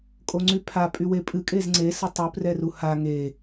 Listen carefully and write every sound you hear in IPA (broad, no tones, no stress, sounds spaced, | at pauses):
kʼ o ŋ͡ǀ y pʰ a pʼ y w e pʼ ɨ kʼ e z ŋ͡ǀ e s ə tˤ u p r ɛ r u h a ŋ e